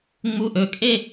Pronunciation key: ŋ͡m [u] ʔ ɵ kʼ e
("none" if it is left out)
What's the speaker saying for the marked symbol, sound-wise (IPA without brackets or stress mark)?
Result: u